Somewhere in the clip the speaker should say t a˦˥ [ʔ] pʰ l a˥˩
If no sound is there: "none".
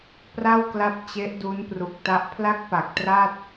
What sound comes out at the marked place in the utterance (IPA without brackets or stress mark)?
ʔ